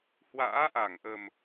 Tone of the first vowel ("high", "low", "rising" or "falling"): rising